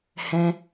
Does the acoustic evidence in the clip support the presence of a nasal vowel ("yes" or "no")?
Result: yes